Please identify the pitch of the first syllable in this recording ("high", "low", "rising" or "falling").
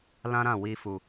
high